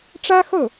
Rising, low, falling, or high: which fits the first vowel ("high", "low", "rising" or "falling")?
high